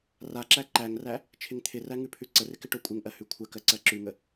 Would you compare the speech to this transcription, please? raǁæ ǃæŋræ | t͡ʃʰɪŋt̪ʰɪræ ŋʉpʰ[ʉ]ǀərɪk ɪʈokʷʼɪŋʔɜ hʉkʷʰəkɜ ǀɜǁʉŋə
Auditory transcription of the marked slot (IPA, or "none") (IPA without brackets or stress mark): ʉ